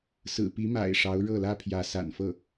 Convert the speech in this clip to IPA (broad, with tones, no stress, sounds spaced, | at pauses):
s ɹ̩˨˩ p i˧˥ m a̰˨˩ ɪ̯ ʂ ɑ˧˥ ʊ̯ ɻ ɤ˥˩ l ä˥ pʰ j ä˧˥ s a̰˨˩ n f ɤ˥˩